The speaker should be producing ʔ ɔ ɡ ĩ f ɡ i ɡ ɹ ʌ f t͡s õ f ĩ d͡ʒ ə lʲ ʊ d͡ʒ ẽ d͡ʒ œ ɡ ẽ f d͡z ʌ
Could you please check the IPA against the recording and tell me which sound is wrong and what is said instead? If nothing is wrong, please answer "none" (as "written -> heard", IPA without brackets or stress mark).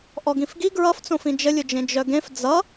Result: none